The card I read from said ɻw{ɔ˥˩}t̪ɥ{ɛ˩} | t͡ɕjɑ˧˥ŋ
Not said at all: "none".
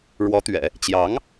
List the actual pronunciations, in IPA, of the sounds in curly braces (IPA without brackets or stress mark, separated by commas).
ɔ˧˥, ɛ̰˨˩˦